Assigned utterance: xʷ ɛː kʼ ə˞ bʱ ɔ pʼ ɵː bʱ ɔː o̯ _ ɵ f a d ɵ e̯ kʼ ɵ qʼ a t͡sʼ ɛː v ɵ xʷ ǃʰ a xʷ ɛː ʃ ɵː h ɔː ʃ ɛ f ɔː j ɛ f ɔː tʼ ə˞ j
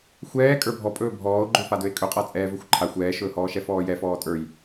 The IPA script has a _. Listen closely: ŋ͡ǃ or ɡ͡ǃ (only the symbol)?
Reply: ɡ͡ǃ